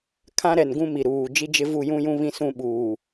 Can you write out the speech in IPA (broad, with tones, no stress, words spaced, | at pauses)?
kʰã˦ɾɛ˨n ɡũ˦mi˨ɾuː˨ d͡ʒi˦d͡ʒɪ˦ vu˦˨jũ˦jũ˦ βĩ˦sũ˦ɓuː˨